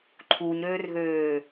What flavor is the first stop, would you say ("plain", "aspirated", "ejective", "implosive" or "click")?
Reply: click